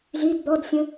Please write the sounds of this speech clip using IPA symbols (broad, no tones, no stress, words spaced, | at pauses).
zyd d̪ɔdsʲə̃